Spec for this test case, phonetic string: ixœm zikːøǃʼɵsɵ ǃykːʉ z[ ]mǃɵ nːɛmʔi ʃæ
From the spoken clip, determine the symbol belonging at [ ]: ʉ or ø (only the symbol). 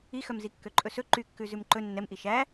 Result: ʉ